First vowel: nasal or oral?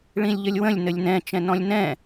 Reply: nasal